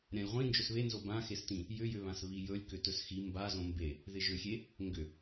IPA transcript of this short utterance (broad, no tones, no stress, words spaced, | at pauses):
ɾʲãlʲʁʷĩ nd͡ʒɵsβenzo bãxestĩ | jʏjʏβãs βijɵlʲ kʏtɵsxi mbazõ mbe | ðɪʒʏxʲe | ŋɡʏ